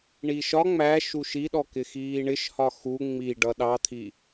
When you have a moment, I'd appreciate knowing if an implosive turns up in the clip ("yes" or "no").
yes